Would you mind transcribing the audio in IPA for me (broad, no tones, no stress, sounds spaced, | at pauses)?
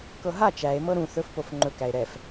k ɤ ɦ a t͡ʃ æ e̯ m ɤ ɾ ũ θ ɵ f p o f ŋ͡ǃ ɵ k æ e̯ ɾ ɛ f